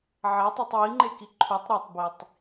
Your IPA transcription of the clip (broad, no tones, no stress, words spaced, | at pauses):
ʕatˤetˤ wiŋ͡ǃeki ǃʰutˤ ɾetˤbitˤ